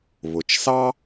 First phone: β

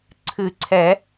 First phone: ǀʰ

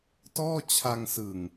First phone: t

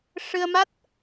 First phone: ʂ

